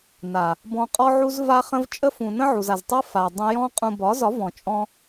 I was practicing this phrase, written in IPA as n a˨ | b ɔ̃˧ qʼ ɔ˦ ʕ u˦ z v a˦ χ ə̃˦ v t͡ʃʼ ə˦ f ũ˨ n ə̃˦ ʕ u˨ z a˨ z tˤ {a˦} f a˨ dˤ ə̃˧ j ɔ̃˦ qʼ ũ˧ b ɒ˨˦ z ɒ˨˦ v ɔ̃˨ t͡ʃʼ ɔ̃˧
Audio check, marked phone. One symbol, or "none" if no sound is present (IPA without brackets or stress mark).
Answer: a˦